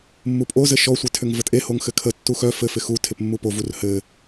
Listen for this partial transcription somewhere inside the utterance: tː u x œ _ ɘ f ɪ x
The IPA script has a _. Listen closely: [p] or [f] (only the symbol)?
f